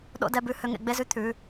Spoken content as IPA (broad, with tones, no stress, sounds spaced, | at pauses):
ɗ o̰˦˨ d ɛ˦˨ b ʉ˦˨ h ø˩˧˩ ŋ ḛ˩˧˩ ɡ͡b e˦˨ z ʉ˦˨ t̪ʰ ʉ˩˧˩